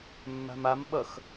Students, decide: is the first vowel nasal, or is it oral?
oral